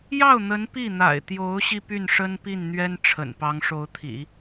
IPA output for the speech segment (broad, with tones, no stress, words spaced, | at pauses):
jɑ˥˩ʊ̯n̪ə˧˥n pi˥˩n̪a̰˨˩ɪ̯ t̪jo˧˥ʊ̯ɕi˧ py˥˩nʂə˥npi˥˩nn̪ɥɛ˥n ʈ͡ʂʰə̰˨˩npɑ˧˥ŋʂo˧˥ʊ̯t̪ʰḭ˨˩˦